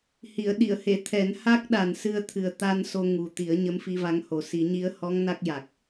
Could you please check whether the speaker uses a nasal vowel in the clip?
no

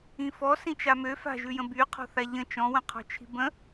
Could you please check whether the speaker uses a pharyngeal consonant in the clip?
no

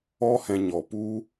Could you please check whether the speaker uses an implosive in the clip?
no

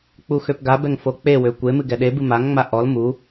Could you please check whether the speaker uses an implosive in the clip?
yes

